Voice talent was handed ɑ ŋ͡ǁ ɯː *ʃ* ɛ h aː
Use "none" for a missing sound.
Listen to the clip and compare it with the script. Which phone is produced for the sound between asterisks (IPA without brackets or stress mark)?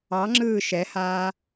ʃ